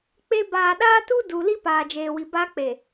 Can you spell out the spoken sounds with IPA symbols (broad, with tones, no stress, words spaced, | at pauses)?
k͡pe˦ baː˨ɗaː˦tu˦ du˨ li˦paː˨d͡ʒeː˨wi˨ ba˦k͡pe˨